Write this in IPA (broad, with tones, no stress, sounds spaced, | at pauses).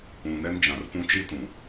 ũ˨ n ɛ˦ n d͡ʒ ã˨ r p ũ˦ t͡ʃ i˦ t ũ˨